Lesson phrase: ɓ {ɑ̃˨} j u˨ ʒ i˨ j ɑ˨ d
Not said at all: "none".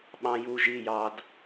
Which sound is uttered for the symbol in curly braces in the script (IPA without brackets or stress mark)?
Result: ɑ̃˨